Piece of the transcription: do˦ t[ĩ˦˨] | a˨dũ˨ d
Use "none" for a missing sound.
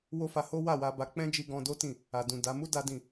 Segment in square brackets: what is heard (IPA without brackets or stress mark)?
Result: ĩ˦˨